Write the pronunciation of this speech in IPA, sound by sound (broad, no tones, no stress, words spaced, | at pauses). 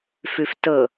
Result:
fʉftɤ